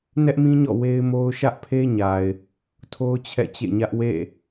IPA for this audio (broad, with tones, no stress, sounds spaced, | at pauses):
n ɛ˦ ʔ m ĩ˦ ɲ ɔ̰˦˨ w e˦ ɪ̯ m o˦ ʊ̯ ʃ ä˦ ʔ pʰ e˦ ɲ a˨ ɪ̯ | tʰ o˦ ʊ̯ t͡ɕʰ ɛ̰˦˨ t͡ɕ ḛ˦˨ ɲ ä˦ ʔ w ḛ˦˨